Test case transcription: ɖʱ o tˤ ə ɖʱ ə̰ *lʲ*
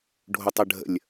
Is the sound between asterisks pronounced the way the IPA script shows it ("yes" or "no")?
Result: yes